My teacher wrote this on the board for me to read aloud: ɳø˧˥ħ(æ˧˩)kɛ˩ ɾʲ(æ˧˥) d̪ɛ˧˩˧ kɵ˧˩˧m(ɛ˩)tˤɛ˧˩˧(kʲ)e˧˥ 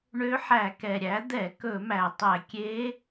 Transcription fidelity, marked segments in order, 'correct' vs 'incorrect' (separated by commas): incorrect, incorrect, incorrect, correct